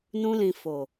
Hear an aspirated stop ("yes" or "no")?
no